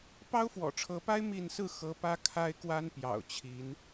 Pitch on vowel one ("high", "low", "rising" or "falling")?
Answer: high